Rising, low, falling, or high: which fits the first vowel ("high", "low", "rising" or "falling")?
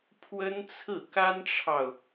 high